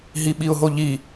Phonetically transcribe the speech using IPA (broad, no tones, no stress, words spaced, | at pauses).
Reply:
ɦiɓiʊ̯ɦoʎi